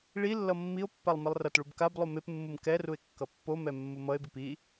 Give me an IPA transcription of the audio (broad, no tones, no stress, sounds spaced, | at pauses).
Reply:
ɭ i lː ʌ mː i o̯ pː a lˠ m i lˠ r ʌ t ɭ u b k a b lˠ u m e p mː ɯ m k ɛ r u e̯ kː ʌ pː o m ɛ mː u m ʌ e̯ b i p i